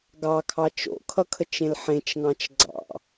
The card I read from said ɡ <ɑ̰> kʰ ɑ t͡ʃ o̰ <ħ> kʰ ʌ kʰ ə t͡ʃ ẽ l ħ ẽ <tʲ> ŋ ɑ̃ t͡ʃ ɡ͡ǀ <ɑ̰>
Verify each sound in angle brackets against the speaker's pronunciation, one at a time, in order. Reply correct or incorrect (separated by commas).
incorrect, incorrect, incorrect, correct